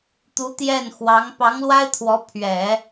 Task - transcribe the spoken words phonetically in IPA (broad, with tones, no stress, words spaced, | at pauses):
t̪u˧˥t̪jɛ˥˩nxwɑ˧˥ŋ pɑ˧˥ŋlwa˥ɪ̯t̪ʰwɔ˧˥ pʰɥɛ˨˩˦